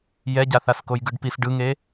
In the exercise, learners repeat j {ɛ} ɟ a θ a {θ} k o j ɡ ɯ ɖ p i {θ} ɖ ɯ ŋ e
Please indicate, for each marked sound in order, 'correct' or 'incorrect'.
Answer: correct, incorrect, incorrect

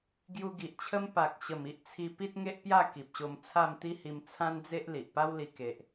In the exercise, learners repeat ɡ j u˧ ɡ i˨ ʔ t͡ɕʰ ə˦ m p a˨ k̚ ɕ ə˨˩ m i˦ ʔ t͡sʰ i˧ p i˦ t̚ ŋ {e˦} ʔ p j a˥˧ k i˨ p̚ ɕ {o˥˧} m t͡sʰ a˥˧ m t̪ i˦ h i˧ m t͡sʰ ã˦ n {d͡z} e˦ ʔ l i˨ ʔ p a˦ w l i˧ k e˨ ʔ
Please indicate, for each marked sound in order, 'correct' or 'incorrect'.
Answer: correct, incorrect, correct

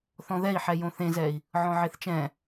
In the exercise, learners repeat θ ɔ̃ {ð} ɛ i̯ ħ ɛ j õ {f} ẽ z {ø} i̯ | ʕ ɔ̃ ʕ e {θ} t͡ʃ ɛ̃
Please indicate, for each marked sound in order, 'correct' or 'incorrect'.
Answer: correct, incorrect, incorrect, correct

